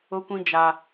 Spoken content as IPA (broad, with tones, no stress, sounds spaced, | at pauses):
ʊ˨ kʷ ĩ˨ d͡ʒ a˨